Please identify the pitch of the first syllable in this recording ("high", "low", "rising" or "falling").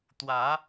rising